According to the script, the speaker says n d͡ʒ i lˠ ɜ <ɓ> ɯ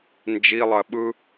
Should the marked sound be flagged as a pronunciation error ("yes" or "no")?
no